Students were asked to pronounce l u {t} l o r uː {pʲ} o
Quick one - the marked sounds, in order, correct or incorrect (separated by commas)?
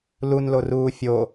incorrect, incorrect